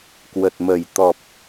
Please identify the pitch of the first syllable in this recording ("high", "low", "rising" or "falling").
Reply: low